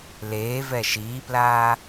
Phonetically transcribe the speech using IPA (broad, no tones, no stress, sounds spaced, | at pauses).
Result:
l eː v ɛ ʃ iː p l aː